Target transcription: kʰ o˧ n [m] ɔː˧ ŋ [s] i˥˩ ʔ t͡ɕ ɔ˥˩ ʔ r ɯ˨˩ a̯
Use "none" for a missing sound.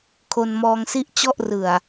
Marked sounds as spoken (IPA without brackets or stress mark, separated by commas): m, s